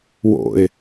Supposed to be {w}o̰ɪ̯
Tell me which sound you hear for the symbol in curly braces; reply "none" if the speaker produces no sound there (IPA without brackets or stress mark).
w